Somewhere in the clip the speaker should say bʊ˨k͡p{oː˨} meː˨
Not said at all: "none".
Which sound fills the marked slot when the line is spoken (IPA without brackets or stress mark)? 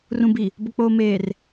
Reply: oː˨